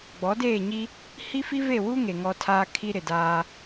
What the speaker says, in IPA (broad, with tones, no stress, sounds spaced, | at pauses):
ɡ͡b ɔ˨˦ d eː˦˨ ɲ i˦ | h i˦ f i˦ v e˦˨ w u˦ ŋ e˨ ŋ ɔ˦ tʰ aː˦ kʰ i˦ ɾ ɪ˨ d aː˦